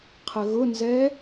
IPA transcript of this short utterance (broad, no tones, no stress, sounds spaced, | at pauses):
qʰ ə ɣ ʊ n z ɛ